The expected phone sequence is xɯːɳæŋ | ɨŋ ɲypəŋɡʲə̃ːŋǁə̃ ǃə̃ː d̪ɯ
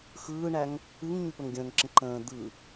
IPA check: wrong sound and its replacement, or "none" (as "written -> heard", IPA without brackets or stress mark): none